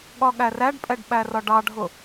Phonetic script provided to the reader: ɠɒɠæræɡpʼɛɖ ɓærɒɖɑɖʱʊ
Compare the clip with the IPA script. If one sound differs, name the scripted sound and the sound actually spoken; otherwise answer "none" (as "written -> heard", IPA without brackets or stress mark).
ɡ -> ɖ